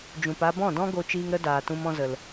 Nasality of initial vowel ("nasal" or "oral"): nasal